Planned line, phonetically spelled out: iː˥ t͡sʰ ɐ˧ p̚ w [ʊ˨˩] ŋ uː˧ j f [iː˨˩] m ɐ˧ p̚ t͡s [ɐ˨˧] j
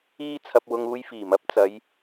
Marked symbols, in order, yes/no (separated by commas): no, yes, yes